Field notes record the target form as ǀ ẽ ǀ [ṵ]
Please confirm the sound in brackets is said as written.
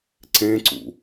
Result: yes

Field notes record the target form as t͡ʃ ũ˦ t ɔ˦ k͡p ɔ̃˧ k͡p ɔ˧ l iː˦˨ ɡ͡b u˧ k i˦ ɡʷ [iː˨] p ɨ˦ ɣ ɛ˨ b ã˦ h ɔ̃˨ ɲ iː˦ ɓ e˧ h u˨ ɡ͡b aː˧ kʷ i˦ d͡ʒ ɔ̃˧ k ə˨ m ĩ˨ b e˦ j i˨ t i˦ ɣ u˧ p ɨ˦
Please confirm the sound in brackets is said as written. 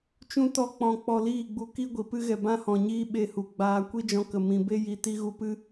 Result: no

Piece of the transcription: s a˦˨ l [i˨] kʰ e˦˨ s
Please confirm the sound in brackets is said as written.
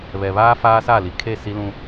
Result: yes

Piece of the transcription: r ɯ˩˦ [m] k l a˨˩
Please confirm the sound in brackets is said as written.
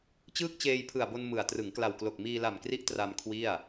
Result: no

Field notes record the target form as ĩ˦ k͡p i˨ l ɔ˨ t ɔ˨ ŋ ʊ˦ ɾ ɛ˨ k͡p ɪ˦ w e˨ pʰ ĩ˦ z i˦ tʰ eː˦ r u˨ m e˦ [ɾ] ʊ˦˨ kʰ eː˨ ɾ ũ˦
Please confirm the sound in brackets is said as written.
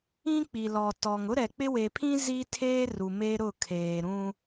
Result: yes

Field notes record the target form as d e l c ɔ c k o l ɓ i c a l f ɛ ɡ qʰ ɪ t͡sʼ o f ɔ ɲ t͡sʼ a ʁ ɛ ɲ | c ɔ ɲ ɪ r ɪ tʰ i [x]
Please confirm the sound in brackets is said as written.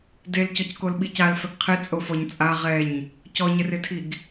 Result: no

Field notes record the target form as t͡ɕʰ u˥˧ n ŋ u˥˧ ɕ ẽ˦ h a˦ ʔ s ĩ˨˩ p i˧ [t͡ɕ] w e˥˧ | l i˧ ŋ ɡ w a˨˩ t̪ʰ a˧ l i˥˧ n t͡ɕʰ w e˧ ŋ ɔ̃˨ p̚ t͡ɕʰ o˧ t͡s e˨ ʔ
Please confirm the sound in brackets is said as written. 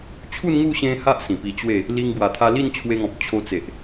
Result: yes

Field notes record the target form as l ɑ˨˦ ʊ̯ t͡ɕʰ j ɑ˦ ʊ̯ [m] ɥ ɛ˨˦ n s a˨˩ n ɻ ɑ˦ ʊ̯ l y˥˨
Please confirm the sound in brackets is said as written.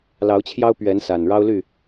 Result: no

